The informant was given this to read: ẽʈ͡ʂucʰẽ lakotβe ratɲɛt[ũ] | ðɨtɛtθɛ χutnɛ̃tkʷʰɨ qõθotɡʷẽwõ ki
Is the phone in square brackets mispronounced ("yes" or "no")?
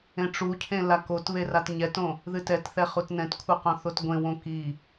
yes